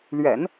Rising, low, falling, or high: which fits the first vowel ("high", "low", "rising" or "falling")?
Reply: low